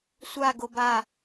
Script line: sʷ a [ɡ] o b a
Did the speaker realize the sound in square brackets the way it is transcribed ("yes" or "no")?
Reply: yes